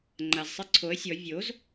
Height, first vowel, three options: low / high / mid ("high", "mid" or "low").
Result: low